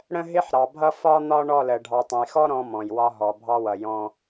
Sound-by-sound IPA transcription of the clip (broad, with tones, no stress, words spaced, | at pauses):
ɽə̃˦ɦɪ˦ħ ɾɑ˨bʱʌ˦fɒ˦n̪ɒ˦ ɳɔ˦˨lə˨ ɖʱɑ˨tˤə̃˨jxɔ˦ ɾɔ̃˦mɔ̃˨jwɒ˦ ɦɔ˨bʱɑ˦wʌ˨ jɔ̃˦